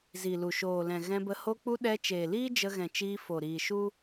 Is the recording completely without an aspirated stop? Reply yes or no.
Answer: yes